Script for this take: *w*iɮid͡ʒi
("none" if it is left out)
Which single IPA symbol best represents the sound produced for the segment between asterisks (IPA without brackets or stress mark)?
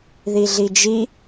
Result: ð